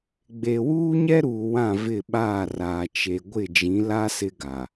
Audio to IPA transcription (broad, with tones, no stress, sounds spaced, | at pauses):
ɡ͡b e˨ w uː˦ ɲ ɛ˦ ɾ uː˨ w ã˦˨ v ɪ˦˨ ɓ aː˦˨ r aː˨ t͡ʃ e˨ ɡʷ ɪ˦˨ d͡ʒ ĩ˨˦ l a˦ s ɪ˦ ɡ a˨